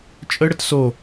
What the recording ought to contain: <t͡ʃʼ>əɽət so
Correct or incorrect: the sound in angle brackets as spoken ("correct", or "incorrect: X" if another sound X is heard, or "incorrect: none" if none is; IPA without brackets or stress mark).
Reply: correct